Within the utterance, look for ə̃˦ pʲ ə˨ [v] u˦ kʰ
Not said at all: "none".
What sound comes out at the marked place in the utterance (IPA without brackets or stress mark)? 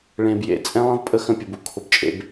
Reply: b